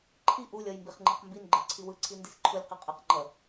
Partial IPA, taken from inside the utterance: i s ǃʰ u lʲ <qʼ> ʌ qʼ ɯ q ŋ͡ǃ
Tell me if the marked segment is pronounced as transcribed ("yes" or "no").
no